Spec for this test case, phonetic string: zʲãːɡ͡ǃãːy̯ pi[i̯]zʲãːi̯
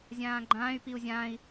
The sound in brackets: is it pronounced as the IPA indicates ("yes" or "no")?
no